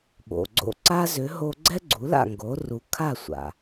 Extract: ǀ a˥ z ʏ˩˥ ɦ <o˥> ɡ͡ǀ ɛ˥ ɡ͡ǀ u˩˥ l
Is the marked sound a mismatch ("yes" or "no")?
yes